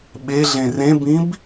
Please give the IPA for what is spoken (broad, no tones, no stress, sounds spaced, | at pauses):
ɓ e ɮ ẽ r ẽ b ĩ b